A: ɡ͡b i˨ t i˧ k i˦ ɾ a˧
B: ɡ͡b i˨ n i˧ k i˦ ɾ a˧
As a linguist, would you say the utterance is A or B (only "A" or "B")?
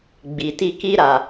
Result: A